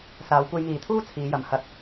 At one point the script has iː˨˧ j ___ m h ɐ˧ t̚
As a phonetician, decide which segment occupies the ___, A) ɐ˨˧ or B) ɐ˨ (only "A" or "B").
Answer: A